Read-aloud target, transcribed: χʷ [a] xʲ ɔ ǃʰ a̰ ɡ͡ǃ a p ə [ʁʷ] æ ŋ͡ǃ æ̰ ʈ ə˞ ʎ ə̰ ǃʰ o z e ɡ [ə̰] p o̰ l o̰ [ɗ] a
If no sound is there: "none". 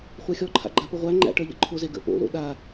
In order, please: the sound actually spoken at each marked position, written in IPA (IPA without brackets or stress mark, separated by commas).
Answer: æ, ʁʷ, ə̰, ɗ